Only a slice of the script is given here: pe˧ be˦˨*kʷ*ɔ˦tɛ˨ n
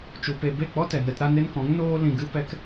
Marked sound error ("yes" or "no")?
yes